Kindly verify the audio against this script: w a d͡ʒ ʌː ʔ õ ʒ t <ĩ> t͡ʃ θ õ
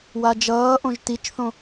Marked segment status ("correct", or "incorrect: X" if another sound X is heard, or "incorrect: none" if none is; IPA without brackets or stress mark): incorrect: i